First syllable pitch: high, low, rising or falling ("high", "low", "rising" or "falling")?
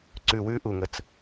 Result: low